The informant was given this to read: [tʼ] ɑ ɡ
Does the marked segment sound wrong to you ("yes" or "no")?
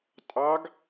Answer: no